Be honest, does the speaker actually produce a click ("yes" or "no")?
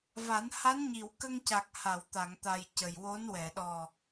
no